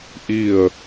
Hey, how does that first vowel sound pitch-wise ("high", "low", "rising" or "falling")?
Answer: falling